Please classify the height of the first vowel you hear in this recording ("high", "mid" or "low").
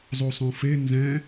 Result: high